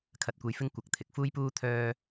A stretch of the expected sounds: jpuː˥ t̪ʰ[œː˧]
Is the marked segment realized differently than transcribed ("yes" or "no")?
yes